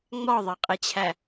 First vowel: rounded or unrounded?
rounded